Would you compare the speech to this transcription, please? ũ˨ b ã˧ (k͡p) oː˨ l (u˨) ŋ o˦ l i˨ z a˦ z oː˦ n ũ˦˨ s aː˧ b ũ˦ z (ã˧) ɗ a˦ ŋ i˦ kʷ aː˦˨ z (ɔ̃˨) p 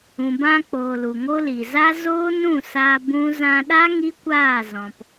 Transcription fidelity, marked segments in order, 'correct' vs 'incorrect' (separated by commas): correct, correct, correct, correct